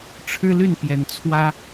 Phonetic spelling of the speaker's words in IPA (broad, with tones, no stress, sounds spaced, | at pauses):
ʈ͡ʂʰ ɻ̩˦ l y˥˨ n p j ɛ˨˦ n t͡sʰ w ä˦